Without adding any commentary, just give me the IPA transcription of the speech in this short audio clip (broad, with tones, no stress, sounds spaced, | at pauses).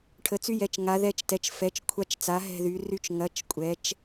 ʈʰ ə˩˧ t͡s y˧ j ɛ˩˧ t͡ʃ ŋ a˩˧ ð ɛ˧˩ t͡ʃ t ɛ˩˧ t͡ʃ f ɛ˩˧ t͡ʃ kʷʰ a˧˩ t͡ʃ t͡s a˩˧ ɦ ɛ̤˧˩ ð y˩˧ r y˧ t͡ʃ ŋ ɐ˩˧ t͡ʃ kʷʼ ɛ˩˧ t͡ʃ